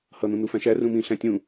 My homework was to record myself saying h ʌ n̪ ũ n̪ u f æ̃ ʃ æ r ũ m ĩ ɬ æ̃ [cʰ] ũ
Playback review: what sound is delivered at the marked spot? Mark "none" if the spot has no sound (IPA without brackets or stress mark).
tʲ